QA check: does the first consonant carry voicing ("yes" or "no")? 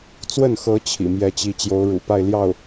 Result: no